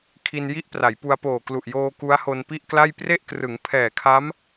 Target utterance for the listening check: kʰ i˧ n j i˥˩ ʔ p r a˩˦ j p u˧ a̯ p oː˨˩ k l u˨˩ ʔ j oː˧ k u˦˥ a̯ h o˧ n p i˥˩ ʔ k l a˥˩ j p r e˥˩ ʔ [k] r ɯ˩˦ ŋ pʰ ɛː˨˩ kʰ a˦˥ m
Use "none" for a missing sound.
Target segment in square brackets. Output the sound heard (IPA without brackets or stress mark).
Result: k